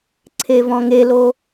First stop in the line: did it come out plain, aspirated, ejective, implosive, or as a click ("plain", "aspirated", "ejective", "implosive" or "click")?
click